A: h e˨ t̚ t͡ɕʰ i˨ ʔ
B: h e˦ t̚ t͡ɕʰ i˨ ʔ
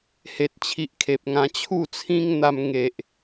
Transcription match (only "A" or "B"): A